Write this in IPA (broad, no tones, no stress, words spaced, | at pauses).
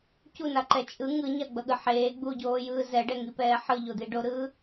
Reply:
cunaǃɛ t͡ʃʼɯ ŋɯɲaɡ͡bʌɠɯ ħeː ɡ͡buɟoːjɯː zɛɖɛŋipɛː ħɯʎod̪i ɖoɾɯː